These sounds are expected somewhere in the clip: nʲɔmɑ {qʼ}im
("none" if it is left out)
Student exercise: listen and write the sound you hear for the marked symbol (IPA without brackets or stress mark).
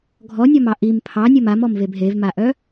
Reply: ʔ